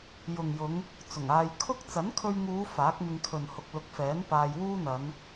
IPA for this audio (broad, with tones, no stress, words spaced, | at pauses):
jʊ˨ŋjʊ˨˧ŋ | t͡sʊ˨˩ŋaː˧j kʰʊ˥k̚ t͡sɐ˨˥nkʰɵ˧ɥŋuː˨˧ faː˨˥k̚mɪ˧ŋkʰɵ˨n hʊ˨k̚lʊ˨˥k̚fɛː˨˥n paː˧jwuː˥n̪ɐ˨˧n